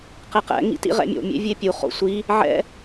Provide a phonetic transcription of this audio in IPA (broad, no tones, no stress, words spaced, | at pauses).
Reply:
qeqɛ̰ ŋḭtḭʁɛ̰mʲo̰ mʲḛvʲepʲu χo̰sʷi | ʕɛ̰